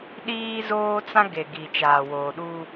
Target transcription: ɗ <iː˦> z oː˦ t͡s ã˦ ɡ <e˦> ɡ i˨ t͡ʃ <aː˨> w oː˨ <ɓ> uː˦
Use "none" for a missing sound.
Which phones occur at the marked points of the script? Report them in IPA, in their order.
iː˦, e˨, aː˨, ɗ

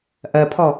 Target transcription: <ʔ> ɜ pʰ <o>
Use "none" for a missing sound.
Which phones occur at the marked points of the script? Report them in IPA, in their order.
ʔ, ɔ

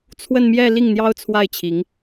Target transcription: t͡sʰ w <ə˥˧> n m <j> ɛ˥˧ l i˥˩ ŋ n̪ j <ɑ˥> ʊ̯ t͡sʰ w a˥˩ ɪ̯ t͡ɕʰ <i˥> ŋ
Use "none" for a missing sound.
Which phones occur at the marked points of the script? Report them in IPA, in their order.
ə˥˧, j, ɑ˥, i˧˥

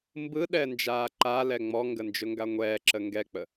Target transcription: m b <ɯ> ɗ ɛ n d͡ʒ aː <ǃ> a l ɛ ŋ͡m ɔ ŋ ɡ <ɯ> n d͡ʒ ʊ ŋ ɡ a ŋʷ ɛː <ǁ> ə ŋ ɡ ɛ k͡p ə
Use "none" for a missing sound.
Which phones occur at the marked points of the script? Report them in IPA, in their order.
ɯ, ǃ, ə, ǁ

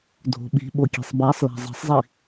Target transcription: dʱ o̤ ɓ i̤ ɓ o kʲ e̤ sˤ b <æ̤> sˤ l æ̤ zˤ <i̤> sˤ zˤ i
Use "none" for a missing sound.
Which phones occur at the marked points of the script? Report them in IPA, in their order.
æ, i̤

